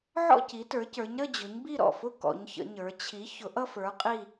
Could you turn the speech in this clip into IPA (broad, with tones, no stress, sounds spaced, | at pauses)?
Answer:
ʕ ɔ̰˥˧ c i˨˦ t ə˞˨˦ c ə˞˨˦ ɲ ɾ ə˥˧ d͡ʑ ʊ˨˦ ɲ b i˥˧ ɾ ɔ̰˧˩ f ʊ˥˧ k ɔ̰˨˦ ɲ ç ə̰˨˦ ɲ ə˞˨˦ t͡ɕʰ i˨˦ ç ʊ˨˦ ʔ ʌ˥˧ f ə˞˨˦ qʼ i˥˧